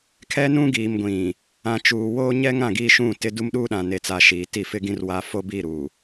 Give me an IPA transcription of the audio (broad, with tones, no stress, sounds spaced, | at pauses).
kʰ ɛ˦ n ũ˦ ɡ iː˨ m ɡʷ ĩ˨ | ã˨ t͡ʃ uː˨ w oː˦ ɲ ɛ˦ ŋ ã˨ ɡ iː˦ ʃ ũ˦˨ t ɪ˦ d u˦ m ɗ uː˦ ɗ ã˨ n e˦ t͡s a˦ ʃ iː˨˦ t i˦˨ f ɪ˦ ɡ ĩ˦ r w a˦ f o˦ b i˦˨ ɾ u˨